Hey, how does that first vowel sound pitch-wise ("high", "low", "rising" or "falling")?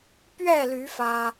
falling